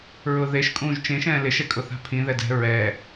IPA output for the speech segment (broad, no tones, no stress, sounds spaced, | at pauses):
ɹ ʊ ð e ʃ kʼ ũː ʒ t͡ʃ ẽ ʃ ɛ̃ː l ɪ ʃ ɛ kʼ ʊ θ a̤ pʰ ĩ ð ɛ d ɛ̤ ɹ ɛ